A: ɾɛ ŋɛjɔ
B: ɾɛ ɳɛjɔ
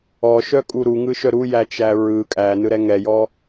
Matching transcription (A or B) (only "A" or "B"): A